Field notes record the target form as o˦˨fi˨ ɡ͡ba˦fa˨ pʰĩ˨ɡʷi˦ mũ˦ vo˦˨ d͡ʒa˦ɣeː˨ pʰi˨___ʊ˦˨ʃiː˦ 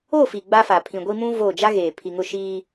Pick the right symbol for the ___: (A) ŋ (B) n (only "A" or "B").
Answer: A